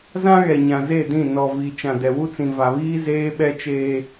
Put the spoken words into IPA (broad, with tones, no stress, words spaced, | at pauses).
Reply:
zã˦ɣɛ˨ ɲã˨ze˦˨dĩ˦˨ nɔ˨ vi˨ t͡ʃã˨dɛ˨wu˦t͡sĩ˨ va˨βiː˦ zeː˦ɓɛ˦t͡ʃeː˦